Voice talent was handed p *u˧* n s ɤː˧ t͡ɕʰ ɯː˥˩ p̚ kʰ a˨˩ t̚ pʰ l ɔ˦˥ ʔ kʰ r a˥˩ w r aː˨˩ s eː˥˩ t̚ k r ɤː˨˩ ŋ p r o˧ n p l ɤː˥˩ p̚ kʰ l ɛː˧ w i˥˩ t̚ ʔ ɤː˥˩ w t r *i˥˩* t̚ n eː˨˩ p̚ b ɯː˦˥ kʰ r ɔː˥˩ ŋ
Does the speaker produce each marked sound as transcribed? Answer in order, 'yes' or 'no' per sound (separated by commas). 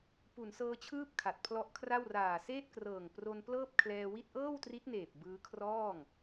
no, no